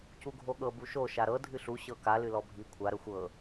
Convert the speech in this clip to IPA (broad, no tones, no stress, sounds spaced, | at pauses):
c u ɡʱ o ɠ ɤ b u ʃ o ʃ a ɾ ɤ dʱ ɨ ɬ u ɕ ɤ k a l ɨ l ɔ bʱ i kʷʰ a ɾ ə xʷ ɤ